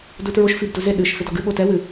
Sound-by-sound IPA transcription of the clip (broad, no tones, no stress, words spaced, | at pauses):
dutɹoʃ fibduze ɗɨʃ fɪdɔɡɨ ɓotɛ wɨ